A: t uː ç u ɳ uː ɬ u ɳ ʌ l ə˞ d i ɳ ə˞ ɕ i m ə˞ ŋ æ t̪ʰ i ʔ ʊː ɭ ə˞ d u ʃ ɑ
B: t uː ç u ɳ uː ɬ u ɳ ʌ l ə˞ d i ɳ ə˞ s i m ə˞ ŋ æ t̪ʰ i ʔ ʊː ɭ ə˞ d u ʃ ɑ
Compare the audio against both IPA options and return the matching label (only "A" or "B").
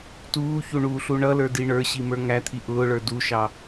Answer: A